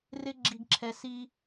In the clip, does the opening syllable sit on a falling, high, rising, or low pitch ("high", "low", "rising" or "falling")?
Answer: high